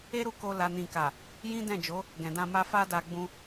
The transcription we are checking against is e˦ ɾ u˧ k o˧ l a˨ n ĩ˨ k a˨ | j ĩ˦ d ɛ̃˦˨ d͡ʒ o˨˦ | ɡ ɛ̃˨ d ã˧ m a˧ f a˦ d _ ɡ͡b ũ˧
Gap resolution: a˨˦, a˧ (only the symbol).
a˧